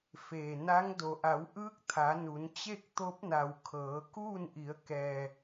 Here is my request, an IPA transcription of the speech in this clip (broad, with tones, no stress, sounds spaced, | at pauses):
f eː˩ n a˧˥ ŋ d o˩ ʔ a˩˧ w ʔ ɯː˧˥ k̚ t̪ʰ a˩˧ n u˩˧ n t͡ɕ e˥˨ k̚ t̪ o˧˥ p̚ n a˩ w kʰ ɤː˩˧ k uː˥˨ n ʔ i˩˧ ə̯ k ɛː˩